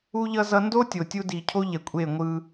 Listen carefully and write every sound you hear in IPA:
u˦ ʎ ʌ˦ z ʌ˦ n d o˦ tʲ o˨ tʲ u˦ d i˨ cʰ o˦ ʎ ɛ˨ kʷʼ e˦˨ ŋʷ ɯ˦

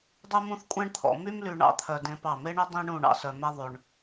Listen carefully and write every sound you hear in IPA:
dˤ u˥ m ũ˥ θ kʷʼ ɛ̃˥ ɳ t̪ʰ ɔ̰˩˧ m y˥ m l y˧ ɳ ɑ̰˥ t̪ʰ œ˧ d ẽ˧ p ɑ˧˩ m e˥ ɳ ɵ˥ dˤ ĩ˥ ɳ ũ˥˧ ɳ ɑ̰˧ s œ˧ m ɛ˥ ðˤ ʉ˧ ɳ

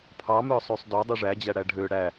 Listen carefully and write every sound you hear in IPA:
pʰ ɑ m œ sˤ ʉ sˤ d ɔ dˤ ʉ ʐ æ d͡ʑ æ ɽ æ ɖʱ ø ɽ æ

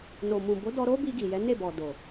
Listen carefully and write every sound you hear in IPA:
n o˨ m ũ˨ b o˨˦ d ɔ˧ ɾ o˦ b i˧ ɡ i˨ j ɛ˨˦ n e˦˨ b ɔ˨ d o˨

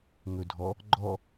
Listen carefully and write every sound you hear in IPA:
ŋ ɵ dʱ ɔ | ɡ͡ǃ ɔ

